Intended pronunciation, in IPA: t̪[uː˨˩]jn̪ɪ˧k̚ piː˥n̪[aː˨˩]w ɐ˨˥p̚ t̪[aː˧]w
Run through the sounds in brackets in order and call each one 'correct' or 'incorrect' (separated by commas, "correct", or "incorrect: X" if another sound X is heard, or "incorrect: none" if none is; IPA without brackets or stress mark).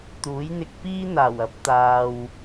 incorrect: uː˨˥, correct, correct